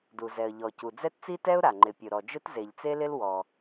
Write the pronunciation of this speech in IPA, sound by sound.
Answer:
d u˩ z ɛ˩ ə̯ ʎ ɔ˩ c u˩ d͡z ɛ˥ t t͡s i˥ t ɛ˥ ʊ̯ ɾ a˩ ŋ͡ǃ ɪ˩ pʲ ʊ˩ ɾ ɔ˩ d͡ʒ ʊ˥ t z e˩ ʎ t͡s e˥ l ɪ˥ l w ɔ˩

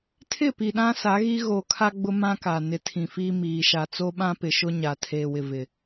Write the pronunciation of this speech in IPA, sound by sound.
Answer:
tʰ ɪ˦˨ p i˨ ɗ ã˦ s a˨˦ ɣ i˦ ɣ o˨ kʰ a˦ ɡ͡b ʊ˦ m ã˦ k a˨ n ɪ˨˦ tʰ ĩ˨ f iː˦ m iː˨ ʃ a˨ t͡s o˦ ɓ ã˦ p ɪ˨ ʃ ʊ˦ ɲ a˨ tʰ eː˨ w ɪ˨ v ɪ˨

